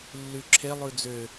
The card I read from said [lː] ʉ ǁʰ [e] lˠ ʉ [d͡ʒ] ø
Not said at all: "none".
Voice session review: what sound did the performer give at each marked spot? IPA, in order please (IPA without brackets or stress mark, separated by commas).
lː, e, d͡z